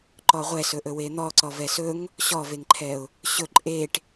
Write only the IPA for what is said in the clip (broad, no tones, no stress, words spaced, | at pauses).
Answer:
ǃɔʁʷɛ sɵʔɵwen̪ɔ ǀɔvɛsɵŋ | ɕɔveŋǃʰɛʊ̯ | ɕɵ ǃʼeʈ